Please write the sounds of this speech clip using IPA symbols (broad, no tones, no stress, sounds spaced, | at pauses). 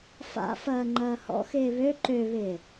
f a̰ f ɐː ŋ͡ǃ ɐː h ɔ̰ x ɪː β ø ǃ ø β ɪː